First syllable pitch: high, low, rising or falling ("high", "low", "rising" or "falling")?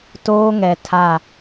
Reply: high